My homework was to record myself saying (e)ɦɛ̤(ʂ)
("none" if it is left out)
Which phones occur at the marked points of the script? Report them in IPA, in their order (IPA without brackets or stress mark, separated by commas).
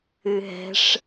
ɨ, ʂ